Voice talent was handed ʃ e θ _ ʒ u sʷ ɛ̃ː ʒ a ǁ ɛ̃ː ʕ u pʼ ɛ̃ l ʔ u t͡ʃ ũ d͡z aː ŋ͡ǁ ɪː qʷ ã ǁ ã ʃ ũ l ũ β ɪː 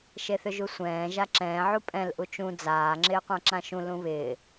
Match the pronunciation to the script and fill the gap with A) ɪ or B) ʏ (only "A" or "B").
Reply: B